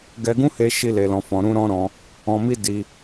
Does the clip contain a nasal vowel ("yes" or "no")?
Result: yes